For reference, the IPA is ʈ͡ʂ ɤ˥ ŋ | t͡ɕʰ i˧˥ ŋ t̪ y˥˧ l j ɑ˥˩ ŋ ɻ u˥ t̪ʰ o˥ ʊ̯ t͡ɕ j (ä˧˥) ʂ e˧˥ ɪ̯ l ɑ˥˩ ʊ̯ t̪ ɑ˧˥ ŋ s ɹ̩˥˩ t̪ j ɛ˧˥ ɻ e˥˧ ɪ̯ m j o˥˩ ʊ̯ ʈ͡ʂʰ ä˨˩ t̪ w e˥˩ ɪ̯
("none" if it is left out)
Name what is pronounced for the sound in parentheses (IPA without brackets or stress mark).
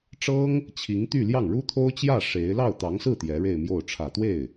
ä˥˩